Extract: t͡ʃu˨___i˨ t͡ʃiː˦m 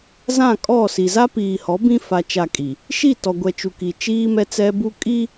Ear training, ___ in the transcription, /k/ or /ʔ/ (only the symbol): k